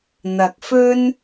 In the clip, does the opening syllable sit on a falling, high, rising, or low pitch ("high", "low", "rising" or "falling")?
low